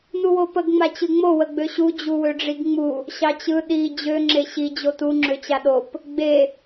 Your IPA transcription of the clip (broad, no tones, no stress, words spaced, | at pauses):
nuwopəɡ ŋ͡mat͡ɕɯŋ͡mo wəɡ͡bøɕu d͡ʑuwøɖ͡ʐiɡŋ͡mu | ɕɑt͡ɕɯ ɗi d͡ʑø ŋ͡ǁeɕi d͡ʑotu ŋ͡ǁøt͡ɕaɗop | ɡ͡be